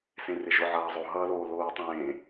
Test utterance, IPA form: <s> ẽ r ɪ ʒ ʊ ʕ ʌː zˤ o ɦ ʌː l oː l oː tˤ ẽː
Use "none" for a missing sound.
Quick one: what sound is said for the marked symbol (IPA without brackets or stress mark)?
s